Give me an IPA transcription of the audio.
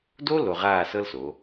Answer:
do˥ lo˧ʁaː˥˧sɤ˥lso˩˧

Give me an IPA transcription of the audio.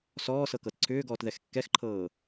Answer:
sɔːsɤkɤt ǀʰʏːɡɔːtðɛx kːɛxǃʰɤː

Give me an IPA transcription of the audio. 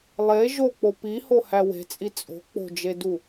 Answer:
lˠe ʒok͡po pihohæ we̤t͡sʼi t͡sʼo̤ k͡po̤d͡ʒedu

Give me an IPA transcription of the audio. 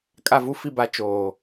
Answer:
kʼa˦˨vu˦fi˦˨ba˦ t͡ʃoː˨

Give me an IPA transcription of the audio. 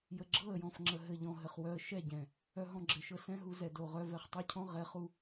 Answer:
jə˨ɡ͡ǁɤ˦˨ə̯jɔ̃˨fŋ͡ǁə˨ ɦɘ˨ʎɔ̃˨ ɦɘ˨χ wœ˧ə̯ ʃɛ˦˨ɟɛ̃˨ | œ˧ɦɔ̃˧ɡ͡ǁɘ˨ʃɤ˧ sɛ̃˦ɦu˧zɛ˨ do˨ʁœ˧ vɛ˧χtˤo˦cʰɔ̃˦ ʁɛ˨˦χu˧

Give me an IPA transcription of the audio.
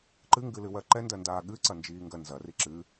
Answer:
ǃɨŋɡɨ lɨwɜǃɛndɜ ndaːɠɨǀɐ nd͡ʒiːŋɡɜnzɐri ǁɨ

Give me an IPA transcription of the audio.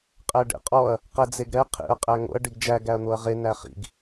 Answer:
qʼæɖḛqʼɔɐ̯ | qɛd͡zeɡɾɛ qʰḛɐ̯ qʼæŋo̰ɐ̯ ɖiɡd͡ʒæ ɡæɐ̯n̪oɐ̯ʁe næχḭɡ

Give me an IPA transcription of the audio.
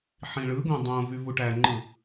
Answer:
ħĩɭɯɡõ dˤõvy vuʈæŋ͡ǃɯ

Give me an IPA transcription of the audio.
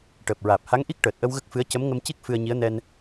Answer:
ʈəː˨˩p̚ɹaː˨˩p̚ha˧˥ŋ ʔi˦˥k̚ʈəː˨˩t̚ʔə˧w ɣə˦˥k̚fɨ˧˥ə̯ cə˧˥mŋə˧mci˦˥k̚ fɨ˧ə̯ɲi˧˥ə̯nɛ˧n

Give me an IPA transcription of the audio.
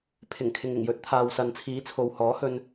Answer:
pʰɪ˨˩ŋkʰɪ˨ŋ ɪ˨˩ŋjɵ˨˥t̚ t̪ʰaː˨wsɐ˨nt͡sʰiː˨˥ t͡sʰo˨whɔː˨˥hɵ˧n

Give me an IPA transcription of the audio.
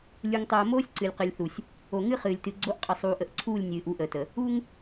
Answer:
lʲu˨ŋtˤoː˨moː˦sʲ ǀɨ˨lʲqɨ˨lʲθu˨sʲ | o˨ŋɨ˦ χɨː˨lʲ tɨ˨ɡ͡ǀo˦ʔqʼə˨ sˤuː˨ʔə˨ʔǀʰuː˦˨lʲ nʲɨː˨ʔu˨˦ʔəː˨tə˨ | u˦ŋ

